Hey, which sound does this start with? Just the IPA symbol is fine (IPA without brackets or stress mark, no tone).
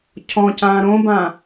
cʰ